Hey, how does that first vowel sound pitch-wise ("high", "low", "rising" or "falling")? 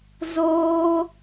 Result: high